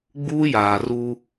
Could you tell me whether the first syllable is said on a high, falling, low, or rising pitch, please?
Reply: high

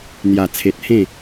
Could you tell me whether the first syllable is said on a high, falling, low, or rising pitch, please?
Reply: low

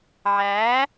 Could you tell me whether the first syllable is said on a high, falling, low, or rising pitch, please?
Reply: rising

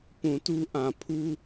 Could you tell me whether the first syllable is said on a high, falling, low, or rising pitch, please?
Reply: low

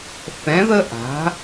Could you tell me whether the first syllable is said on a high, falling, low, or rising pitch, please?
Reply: rising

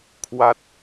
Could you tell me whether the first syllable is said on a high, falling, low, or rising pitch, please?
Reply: falling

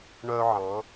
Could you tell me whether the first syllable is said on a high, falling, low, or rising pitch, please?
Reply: high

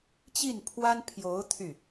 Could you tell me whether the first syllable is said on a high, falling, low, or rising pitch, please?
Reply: falling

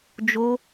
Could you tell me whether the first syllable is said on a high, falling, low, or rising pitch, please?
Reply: high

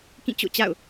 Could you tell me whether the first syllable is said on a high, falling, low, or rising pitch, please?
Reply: falling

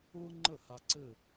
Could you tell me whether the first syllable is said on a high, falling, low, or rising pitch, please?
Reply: high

